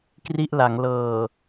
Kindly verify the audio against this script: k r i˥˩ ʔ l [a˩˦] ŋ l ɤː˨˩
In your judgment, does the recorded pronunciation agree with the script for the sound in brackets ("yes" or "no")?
yes